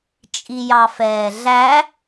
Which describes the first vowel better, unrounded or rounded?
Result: unrounded